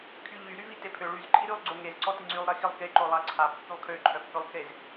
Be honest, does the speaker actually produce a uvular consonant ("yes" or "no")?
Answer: no